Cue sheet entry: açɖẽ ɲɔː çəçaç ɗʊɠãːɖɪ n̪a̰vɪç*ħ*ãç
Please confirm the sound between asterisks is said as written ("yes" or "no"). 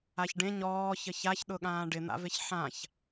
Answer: yes